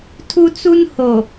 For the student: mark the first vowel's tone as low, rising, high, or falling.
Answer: high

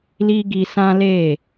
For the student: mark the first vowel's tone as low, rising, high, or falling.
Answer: high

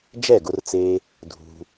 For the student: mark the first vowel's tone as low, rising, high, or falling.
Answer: falling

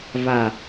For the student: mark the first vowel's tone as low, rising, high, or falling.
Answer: low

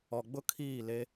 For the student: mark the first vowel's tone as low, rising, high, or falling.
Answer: low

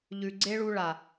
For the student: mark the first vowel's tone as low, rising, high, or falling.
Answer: low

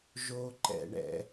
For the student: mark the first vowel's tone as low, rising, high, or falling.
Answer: high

